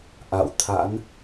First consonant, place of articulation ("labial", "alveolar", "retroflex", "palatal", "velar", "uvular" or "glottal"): glottal